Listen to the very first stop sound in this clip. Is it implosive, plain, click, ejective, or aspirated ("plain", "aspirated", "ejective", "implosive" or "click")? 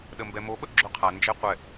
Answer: implosive